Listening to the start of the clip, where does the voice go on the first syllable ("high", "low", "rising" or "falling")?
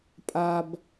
high